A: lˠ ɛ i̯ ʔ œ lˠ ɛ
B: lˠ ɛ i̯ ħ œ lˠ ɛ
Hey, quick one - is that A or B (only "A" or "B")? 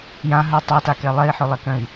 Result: B